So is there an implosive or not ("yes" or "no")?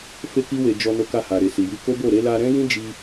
no